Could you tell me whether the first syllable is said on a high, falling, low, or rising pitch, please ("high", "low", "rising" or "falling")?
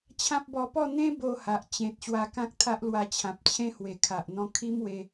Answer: high